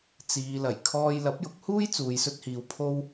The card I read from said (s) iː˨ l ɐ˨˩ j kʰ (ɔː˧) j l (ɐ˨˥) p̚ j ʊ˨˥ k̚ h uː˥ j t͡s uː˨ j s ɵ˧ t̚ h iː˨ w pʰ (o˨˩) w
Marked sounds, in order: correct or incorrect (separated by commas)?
incorrect, correct, correct, incorrect